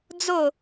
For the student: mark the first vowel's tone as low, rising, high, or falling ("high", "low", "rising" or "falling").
falling